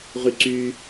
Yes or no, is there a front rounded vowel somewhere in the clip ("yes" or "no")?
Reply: yes